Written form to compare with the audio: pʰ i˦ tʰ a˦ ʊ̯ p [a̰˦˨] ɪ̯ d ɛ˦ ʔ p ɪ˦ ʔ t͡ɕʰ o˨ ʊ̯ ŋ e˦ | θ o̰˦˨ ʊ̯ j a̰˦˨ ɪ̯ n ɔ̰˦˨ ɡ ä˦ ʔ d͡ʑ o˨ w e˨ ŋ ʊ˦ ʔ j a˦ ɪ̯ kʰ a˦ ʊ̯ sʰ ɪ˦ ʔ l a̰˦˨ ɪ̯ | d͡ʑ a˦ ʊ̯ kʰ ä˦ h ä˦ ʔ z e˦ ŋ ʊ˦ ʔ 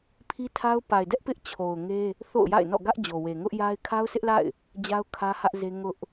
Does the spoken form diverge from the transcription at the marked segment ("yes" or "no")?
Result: yes